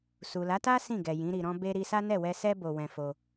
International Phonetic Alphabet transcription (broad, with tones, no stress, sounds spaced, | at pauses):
s u˨ l a˨˦ t a˦ s ĩ˦˨ ɡ ɛ˨ j ĩ˨˦ ɾ i˧ ɾ ɔ̃˦ b e˦ ɾ i˧ s a˦ n ɛ˦˨ w ɛ˧ s ɛ˦ b o˧ w ɛ̃˧ f o˧